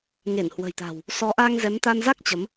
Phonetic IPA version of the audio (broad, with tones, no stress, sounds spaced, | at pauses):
ŋ e˧˩ n h w ə̤˨˩ j t̪ a̤˨˩ w | s ɔ˨˦ ʔ a˧ ŋ z ɛ˨˦ m t̪ a˧ n z a˦˥ k̚ t͡ɕ ə˨˦ m